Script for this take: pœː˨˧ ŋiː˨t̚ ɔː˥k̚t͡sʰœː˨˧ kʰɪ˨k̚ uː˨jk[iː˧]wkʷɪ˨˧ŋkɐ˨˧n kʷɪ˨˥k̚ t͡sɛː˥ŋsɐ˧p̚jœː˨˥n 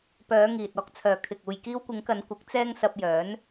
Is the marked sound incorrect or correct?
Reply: correct